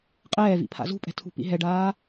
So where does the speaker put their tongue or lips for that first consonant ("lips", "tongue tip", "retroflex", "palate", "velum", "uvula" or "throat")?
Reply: uvula